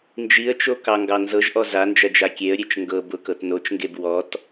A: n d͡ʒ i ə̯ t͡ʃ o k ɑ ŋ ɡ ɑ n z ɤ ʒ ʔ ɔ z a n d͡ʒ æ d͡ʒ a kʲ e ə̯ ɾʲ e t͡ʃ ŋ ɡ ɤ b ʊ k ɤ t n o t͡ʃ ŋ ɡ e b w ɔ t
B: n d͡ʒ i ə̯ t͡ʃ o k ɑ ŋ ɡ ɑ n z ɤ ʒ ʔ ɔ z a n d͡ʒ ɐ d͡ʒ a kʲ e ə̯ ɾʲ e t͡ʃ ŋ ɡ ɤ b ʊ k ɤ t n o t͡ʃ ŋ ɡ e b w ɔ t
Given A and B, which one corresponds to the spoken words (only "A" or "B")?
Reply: B